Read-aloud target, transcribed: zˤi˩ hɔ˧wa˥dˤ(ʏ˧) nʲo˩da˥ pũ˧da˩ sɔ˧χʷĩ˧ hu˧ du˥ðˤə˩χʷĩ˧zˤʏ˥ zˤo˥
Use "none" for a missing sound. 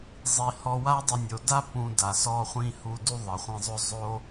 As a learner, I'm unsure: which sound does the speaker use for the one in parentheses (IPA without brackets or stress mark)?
ə˧